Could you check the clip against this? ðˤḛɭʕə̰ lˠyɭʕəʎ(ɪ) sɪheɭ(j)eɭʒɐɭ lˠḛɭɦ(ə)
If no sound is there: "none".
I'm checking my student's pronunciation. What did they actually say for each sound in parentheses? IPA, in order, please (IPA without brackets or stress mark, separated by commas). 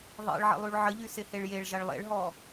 y, j, ɔ